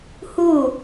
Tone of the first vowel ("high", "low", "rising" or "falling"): falling